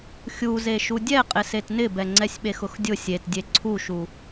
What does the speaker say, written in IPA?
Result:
xʲuzeʃu dʲɛqʼɪ setnɪbɛ ŋ͡ǀɛsʲɓexʊxdʲʊ sʲetdʲe ǀʰuʃu

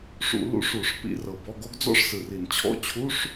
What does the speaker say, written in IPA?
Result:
ʂṵ˧˩˧ lṵ˨˦ʂu˧˩˧ʂ pḭ˨˦rɤ˨˩bɔ˧˥˧ɡo˥ɡ d͡zɔ̰˥ʂsɯ˨˩ri˧˩˧n t͡ɕʰɔ̰˧˥˧t͡ɕʰu˧˥˧ʂ

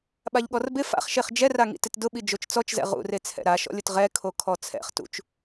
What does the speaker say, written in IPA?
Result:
ɓaʎɠɔrbɪ fa̰χʃeχ d͡ʒɛraŋḭ tɪtdʊɓi d͡ʒot͡ʃt͡sɔt͡ʃzɛ̰ ʁṵre t͡sʰɛ̰ɾaʃɔ̰lʲʊt ʁɛkʰo kʰɔt͡sʰɛ̰χ tṵt͡ʃ

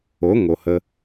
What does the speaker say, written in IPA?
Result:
o˨˦ŋo˨hə˧

